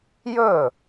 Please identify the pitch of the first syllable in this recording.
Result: falling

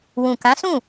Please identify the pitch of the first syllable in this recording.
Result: low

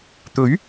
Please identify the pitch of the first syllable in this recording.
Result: rising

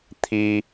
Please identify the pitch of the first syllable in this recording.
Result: high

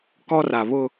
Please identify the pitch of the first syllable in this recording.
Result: high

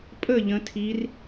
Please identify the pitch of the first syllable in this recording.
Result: falling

